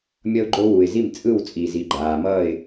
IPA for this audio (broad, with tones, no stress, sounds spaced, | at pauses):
mʲ ʌ˥ ʊ̯ ɡ͡ǃ o˥ w u˩ ɪ̯ z i˥˩ m t͡sʼ ɯ˥˩ w t͡sʼ i˩ z i˩ ɡ͡ǃ aː˩ m ʌː˥˩ ɪ̯